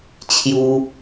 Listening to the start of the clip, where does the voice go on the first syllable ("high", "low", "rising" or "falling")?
high